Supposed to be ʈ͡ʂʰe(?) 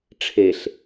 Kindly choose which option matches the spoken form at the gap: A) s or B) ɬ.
B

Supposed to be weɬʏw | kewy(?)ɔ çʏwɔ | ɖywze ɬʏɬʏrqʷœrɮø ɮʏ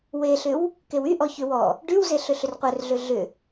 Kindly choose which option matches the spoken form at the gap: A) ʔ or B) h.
A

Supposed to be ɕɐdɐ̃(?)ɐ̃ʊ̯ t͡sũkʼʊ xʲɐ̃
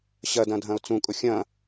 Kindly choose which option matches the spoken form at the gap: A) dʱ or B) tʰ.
A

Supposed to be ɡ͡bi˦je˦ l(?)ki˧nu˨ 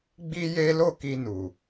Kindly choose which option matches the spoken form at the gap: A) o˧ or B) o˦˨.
B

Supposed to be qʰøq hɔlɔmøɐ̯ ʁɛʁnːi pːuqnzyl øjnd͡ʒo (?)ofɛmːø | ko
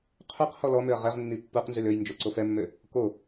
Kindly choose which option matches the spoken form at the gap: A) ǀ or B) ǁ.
A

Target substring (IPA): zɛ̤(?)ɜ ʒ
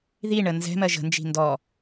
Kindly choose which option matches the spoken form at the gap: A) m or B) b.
A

